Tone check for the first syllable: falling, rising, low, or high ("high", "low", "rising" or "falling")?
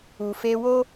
low